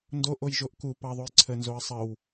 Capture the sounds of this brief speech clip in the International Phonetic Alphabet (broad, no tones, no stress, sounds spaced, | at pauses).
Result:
n d o ʔ o j ʒ o ʔ k u p ɑ ðˤ o j ǀʰ ə n z o ə̯ sˤ ə w